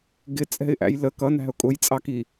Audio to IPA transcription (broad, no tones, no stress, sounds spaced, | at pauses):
ɡ ɪ t͡sʼ ɛ̤ ɪ̯ ʔ æ̰ j l ə k ʌ n æ̤ ʊ̯ kʼ ʊ j t͡sʼ ɑ k i